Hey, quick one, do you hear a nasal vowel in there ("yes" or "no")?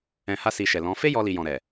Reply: yes